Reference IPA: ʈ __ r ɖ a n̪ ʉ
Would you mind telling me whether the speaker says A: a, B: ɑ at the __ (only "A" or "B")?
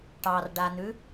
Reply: B